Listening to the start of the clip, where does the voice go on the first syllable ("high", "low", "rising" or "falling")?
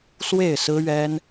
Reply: falling